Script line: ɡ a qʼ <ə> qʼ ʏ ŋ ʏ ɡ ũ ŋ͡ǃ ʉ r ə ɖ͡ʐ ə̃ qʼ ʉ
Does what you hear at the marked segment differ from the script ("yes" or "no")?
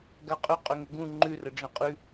yes